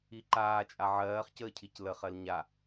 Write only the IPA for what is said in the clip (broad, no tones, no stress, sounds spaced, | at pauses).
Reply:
i ǃ aː t͡ʃʼ a ʕ ɜː χ c əː cʰ i c l ə χ ɜ l ɲ a